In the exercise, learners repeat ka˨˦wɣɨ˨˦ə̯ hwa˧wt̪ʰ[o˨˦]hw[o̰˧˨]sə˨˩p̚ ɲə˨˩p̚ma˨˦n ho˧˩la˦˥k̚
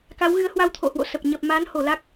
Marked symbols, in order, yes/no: no, yes

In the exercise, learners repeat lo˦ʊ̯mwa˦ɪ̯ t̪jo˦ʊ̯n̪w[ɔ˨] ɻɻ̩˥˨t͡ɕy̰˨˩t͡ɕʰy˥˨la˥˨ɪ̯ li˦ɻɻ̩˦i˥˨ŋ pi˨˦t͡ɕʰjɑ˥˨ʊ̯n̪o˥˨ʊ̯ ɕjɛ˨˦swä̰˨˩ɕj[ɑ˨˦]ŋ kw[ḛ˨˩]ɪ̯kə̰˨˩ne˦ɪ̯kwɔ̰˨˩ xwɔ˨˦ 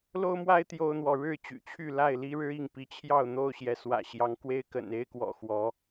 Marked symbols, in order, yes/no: yes, yes, no

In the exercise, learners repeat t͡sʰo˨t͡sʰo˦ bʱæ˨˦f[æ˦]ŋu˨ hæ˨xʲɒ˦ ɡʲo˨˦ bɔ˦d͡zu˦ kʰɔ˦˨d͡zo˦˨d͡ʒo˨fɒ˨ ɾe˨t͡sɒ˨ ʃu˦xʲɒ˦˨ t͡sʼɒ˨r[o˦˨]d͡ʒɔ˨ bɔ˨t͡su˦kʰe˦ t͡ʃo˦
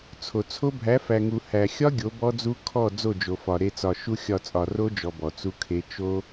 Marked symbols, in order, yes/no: no, no

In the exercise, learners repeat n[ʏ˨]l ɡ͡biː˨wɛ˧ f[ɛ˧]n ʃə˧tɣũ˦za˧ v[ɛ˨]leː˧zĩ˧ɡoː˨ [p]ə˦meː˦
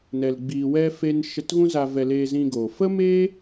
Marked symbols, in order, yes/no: no, no, no, no

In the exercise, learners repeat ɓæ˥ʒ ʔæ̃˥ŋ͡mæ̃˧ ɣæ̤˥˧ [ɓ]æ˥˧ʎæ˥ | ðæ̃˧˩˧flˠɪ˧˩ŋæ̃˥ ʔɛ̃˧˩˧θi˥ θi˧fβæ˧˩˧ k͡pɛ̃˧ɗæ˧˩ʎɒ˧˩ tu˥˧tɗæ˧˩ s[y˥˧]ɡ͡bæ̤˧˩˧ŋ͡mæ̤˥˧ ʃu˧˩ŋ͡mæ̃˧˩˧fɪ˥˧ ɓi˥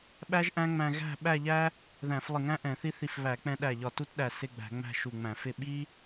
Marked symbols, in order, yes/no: yes, no

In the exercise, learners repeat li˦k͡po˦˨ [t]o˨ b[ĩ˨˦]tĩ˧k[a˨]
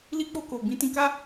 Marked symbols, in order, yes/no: no, yes, no

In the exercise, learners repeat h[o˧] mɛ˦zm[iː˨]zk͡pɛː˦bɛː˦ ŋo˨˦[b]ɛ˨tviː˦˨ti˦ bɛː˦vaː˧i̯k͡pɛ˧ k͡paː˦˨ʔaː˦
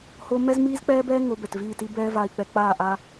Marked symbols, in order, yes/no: yes, no, yes

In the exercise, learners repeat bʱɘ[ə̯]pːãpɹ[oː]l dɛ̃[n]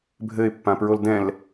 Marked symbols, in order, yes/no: no, no, no

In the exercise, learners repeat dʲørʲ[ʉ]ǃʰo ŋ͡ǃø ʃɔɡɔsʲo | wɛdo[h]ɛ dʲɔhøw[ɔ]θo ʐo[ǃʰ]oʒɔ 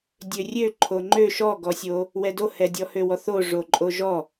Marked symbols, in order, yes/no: no, yes, yes, no

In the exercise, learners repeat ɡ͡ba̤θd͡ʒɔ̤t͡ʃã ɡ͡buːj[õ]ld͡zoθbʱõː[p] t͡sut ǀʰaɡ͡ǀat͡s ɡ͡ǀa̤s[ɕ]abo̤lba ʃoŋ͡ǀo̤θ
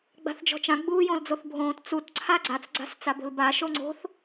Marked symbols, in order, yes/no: yes, no, no

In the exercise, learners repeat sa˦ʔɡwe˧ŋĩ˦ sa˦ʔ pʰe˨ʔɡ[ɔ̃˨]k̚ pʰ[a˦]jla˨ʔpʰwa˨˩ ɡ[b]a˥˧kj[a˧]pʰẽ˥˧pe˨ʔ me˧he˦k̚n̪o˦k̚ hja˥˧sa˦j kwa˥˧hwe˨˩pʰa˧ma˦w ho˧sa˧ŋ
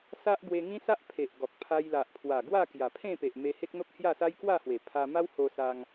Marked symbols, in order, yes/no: no, no, no, no

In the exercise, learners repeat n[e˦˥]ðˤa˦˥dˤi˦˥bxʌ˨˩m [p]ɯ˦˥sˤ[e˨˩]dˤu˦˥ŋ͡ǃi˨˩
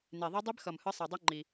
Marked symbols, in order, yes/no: no, no, yes

